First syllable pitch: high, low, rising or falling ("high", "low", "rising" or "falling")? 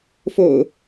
low